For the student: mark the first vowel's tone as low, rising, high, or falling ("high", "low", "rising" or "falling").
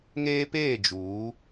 high